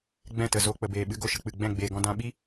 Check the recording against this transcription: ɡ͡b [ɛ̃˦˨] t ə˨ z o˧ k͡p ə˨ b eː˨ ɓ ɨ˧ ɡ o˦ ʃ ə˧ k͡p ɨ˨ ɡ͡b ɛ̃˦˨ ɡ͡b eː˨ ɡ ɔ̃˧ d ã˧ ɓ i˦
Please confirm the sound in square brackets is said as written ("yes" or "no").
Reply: yes